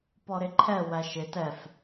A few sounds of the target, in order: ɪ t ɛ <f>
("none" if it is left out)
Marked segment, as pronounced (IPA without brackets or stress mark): f